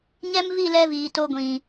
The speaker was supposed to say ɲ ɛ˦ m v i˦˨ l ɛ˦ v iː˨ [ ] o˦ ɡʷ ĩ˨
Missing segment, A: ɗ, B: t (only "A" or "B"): B